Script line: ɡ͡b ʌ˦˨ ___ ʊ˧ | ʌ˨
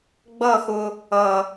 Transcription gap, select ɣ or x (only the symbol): x